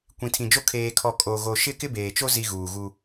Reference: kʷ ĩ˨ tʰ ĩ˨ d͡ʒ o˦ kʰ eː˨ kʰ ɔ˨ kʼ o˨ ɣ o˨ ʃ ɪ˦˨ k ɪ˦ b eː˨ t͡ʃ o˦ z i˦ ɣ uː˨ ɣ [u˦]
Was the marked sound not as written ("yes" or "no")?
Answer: no